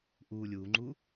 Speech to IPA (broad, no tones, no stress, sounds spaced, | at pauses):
ʔ uː lʲ uː ŋ͡ǃ uː